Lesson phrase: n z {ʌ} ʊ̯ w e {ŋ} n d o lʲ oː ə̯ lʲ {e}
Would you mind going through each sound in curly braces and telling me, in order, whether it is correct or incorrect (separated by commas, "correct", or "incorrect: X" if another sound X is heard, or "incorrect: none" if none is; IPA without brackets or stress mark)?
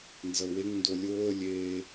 correct, correct, incorrect: eː